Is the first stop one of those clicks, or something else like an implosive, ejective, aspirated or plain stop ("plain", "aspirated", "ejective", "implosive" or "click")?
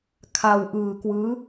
aspirated